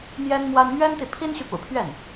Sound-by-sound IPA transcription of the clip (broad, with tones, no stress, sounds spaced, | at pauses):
m j ɛ˥ n m w a˥ n m ɥ ɛ˥ n t̪ i˨ pʰ i˥ n ɕ y˨ p ṵ˨˩ pʰ ɥ ɛ˥˩ n